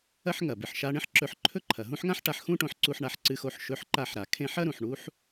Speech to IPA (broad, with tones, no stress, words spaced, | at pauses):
ɐ˥ħŋɐ˩ bɨ˩ħʃa˦ ɳẽ˥ħǁɵ˨ħ ǃʰɵ˥ǃʰɐ˩ɦũ˥ħŋã˥ħ ʈa˨ħxũ˦ʈõ˨ħǀu˨ħ ɳa˨ħǀɨ˨xo˨ħ ʃɵ˦ħǃa˦ħɾa˩ kʰẽ˥ħ ɐ˥ɾũ˩ħɳu˦ħ